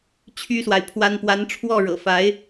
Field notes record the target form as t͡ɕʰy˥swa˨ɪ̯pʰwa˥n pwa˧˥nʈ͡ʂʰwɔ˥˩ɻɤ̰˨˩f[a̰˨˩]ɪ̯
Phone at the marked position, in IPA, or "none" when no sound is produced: a˧˥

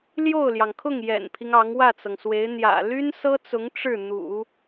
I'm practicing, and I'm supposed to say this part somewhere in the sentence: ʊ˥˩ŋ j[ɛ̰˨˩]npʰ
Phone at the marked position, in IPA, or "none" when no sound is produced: ɛ̰˨˩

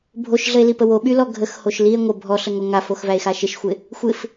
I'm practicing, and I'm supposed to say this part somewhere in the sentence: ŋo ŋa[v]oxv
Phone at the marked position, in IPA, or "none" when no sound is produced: f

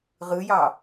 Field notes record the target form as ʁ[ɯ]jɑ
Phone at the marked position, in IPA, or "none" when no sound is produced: ɯ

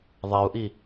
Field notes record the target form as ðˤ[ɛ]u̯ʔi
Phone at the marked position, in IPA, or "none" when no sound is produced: ɛ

